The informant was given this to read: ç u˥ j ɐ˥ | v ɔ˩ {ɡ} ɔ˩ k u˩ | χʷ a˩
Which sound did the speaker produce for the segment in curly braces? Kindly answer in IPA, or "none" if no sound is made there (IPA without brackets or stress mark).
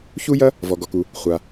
ɡ